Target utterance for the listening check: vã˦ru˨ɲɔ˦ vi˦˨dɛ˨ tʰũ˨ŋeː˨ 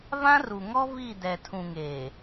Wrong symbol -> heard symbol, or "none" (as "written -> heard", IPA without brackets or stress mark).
ɲ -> ŋ